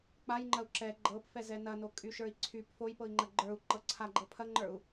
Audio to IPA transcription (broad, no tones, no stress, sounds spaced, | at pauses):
k͡p a j ŋ͡ǃ ɐ u̯ ǁ ɛ ɡ͡ǃ ɤ p f ɛ z ɛ n ɐ n o kʼ y ʃ ə˞ i̯ ǀʰ y p f o j p ɤ i̯ ŋ͡ǃ ɐ ɡ͡ǃ ə˞ u̯ ǃ ɤ ǀʰ a ɡ͡ǃ ɤ pʰ ɐ ŋ͡ǃ ə˞ u̯